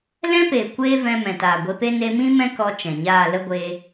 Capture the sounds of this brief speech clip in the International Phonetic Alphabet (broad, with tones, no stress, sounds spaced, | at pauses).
l ɛ̃˦ p eː˨ kʷ eː˦ v ɛ̃˧ m ɛ̃˨ t aː˨ ɡʷ e˧ p e˦ n e˧ m ĩ˦ m ɛ̃˦ k ɔ˧ t͡ʃ ɛ̃˨ ɲ aː˦˨ l ə˦ ɡʷ eː˧